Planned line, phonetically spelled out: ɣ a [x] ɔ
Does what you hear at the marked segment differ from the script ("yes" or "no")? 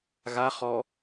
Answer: yes